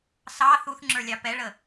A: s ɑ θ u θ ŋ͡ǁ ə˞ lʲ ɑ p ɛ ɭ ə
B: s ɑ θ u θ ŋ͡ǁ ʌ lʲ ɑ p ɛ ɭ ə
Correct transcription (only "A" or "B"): A